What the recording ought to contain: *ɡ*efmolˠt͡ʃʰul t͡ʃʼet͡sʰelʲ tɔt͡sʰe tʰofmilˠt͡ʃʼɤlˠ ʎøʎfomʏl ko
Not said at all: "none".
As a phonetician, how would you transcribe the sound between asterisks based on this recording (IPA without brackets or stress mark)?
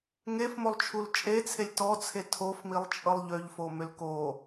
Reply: ŋ